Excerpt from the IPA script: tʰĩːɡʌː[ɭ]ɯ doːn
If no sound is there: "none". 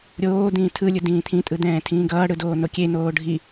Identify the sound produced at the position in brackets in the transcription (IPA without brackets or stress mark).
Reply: ɽ